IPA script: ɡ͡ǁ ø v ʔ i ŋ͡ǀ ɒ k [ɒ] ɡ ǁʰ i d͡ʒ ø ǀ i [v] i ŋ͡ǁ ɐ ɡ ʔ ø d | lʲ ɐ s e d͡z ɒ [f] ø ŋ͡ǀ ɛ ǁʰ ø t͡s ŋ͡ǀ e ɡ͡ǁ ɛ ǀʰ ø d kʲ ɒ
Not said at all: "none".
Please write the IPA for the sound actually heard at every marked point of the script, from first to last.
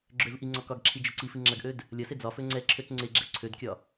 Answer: ɒ, f, f

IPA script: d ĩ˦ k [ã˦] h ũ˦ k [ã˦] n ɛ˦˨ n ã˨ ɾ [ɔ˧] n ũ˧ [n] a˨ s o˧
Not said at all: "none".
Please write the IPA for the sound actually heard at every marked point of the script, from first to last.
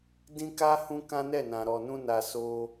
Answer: a˦, ã˦, ɔ˨, n

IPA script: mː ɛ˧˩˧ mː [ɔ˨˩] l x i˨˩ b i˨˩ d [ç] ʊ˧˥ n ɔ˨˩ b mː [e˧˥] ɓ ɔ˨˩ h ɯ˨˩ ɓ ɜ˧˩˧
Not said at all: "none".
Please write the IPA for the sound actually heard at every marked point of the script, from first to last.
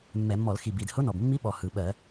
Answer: ɔ˧˩˧, h, i˧˥

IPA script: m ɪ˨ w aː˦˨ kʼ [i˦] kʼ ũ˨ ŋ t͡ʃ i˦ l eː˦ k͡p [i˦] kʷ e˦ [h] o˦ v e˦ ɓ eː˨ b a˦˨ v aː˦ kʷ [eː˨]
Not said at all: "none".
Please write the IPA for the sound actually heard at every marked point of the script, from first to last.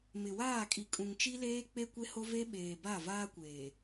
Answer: i˨, e˦, h, eː˨

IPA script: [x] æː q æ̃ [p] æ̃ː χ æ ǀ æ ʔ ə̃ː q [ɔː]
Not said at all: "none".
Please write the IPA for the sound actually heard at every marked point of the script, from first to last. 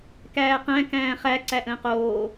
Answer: k, k, oː

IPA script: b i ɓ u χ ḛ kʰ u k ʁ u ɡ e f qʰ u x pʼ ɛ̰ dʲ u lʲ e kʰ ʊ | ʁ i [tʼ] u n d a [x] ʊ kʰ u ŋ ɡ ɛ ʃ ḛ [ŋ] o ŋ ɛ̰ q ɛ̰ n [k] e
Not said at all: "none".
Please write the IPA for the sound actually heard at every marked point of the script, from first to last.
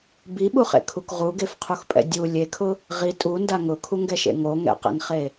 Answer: tʼ, ŋ, ŋ, χ

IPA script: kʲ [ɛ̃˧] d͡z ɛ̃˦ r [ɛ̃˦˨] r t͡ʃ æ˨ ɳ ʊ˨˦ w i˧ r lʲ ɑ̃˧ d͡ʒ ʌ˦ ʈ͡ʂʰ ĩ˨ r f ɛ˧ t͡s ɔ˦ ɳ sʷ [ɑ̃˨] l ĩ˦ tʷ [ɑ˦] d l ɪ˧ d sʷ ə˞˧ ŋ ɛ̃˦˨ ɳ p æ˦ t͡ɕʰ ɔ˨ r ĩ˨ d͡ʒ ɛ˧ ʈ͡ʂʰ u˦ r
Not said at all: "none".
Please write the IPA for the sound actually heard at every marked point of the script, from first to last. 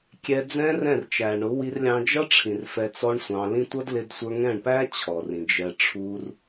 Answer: ɛ˧, ɛ̃˦˨, ɑ̃˧, ʌ˦

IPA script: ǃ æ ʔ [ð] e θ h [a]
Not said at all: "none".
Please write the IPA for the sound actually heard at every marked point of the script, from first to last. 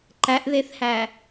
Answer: ð, æ

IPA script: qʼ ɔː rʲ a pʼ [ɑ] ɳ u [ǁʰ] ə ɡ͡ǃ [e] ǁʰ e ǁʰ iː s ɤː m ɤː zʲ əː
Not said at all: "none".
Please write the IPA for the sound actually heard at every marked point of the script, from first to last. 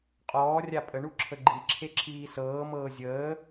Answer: ə, ǁʰ, i

